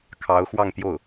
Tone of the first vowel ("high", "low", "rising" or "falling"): rising